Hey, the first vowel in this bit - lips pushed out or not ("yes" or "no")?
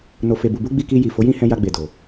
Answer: yes